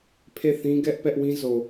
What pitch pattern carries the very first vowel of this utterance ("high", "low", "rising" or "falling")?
falling